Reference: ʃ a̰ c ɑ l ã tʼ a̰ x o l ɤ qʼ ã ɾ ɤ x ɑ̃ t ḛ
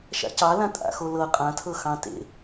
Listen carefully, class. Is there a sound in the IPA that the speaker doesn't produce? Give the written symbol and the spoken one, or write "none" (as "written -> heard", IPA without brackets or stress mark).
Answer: ɾ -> tʰ